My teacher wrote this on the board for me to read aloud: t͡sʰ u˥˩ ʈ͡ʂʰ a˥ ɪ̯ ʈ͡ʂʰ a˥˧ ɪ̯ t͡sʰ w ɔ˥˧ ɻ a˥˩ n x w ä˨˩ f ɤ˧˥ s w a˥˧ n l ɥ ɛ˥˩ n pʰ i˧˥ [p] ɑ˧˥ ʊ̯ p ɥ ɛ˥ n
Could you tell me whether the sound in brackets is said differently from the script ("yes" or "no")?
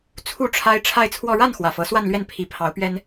yes